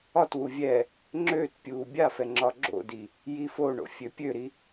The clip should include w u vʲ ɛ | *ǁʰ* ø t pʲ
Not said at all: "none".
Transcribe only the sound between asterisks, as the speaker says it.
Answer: ŋ͡ǁ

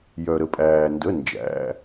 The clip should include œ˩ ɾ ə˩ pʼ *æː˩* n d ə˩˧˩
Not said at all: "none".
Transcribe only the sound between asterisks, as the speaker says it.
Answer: æː˩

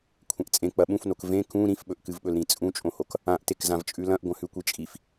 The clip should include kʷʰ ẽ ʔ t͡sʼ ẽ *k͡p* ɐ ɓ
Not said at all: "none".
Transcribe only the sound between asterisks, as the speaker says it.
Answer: k͡p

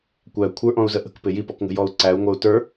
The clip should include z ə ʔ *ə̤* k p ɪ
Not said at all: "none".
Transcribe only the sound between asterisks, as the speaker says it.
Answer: ə̤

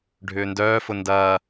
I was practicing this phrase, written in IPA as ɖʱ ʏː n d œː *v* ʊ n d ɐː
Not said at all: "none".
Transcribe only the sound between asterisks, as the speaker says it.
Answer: f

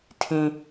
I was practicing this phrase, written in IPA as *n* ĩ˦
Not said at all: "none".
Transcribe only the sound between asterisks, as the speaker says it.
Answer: tʰ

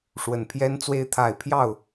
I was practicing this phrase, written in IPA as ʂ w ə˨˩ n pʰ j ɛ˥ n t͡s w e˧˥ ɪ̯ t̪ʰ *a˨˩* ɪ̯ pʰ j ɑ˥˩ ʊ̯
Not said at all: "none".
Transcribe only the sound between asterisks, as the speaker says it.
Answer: a˨˩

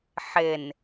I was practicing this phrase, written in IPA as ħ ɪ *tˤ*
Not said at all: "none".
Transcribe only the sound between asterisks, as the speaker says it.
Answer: n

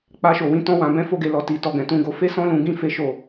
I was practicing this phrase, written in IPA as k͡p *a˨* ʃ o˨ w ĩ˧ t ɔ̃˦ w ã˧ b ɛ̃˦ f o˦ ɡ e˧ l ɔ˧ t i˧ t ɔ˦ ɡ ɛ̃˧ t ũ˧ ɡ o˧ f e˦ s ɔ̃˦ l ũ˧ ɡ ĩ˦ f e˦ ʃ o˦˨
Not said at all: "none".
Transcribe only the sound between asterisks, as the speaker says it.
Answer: a˧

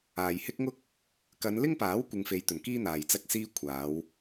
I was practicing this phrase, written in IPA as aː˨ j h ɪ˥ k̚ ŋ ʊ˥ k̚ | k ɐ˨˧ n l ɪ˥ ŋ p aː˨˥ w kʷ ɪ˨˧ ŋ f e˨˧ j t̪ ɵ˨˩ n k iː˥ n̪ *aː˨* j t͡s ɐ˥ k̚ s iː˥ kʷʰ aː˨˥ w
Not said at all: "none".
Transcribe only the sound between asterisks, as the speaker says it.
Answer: aː˨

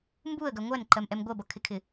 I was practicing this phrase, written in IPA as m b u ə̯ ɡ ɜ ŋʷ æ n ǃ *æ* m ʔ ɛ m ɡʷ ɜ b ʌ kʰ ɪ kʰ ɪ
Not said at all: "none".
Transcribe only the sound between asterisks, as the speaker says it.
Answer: ɜ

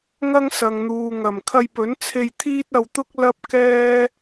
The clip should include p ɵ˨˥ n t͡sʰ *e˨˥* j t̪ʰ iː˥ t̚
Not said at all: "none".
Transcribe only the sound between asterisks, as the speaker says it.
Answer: e˧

